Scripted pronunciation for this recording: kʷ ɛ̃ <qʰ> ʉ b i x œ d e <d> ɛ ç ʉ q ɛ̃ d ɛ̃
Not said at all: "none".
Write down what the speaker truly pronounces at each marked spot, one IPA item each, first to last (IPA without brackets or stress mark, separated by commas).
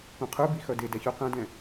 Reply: qʰ, d